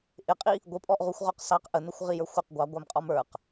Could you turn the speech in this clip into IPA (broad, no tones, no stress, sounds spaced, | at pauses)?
ʔ ɪ qʼ i | ɡʷ ɪ pʼ ɔ ʔ ʁ u xʷ ʁ ɔ q s ɑ q ʔ ə n ʊ xʷ ʁ i j ə˞ xʷ ɪ q ɡʷ ɑ ɡʷ æ m qʼ ɔ m ə˞ q